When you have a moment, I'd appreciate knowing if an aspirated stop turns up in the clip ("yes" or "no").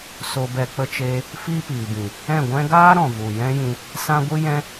no